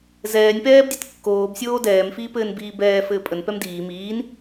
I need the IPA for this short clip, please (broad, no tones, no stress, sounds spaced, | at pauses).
z ɛː nʲ p ɛː b dʲ ɘ t kː oː b sʲ oː d ɛː m f iː p ɘː n b iː b ɛː f ɘː pʼ ə n p ɛ m d iː m iː n